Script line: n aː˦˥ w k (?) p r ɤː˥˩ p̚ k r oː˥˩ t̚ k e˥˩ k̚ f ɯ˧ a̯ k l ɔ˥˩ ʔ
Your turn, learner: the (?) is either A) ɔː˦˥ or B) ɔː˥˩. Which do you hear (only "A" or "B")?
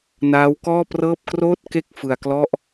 B